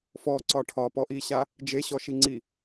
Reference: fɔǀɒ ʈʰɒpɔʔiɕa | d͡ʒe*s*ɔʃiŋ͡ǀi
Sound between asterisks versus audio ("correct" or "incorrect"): incorrect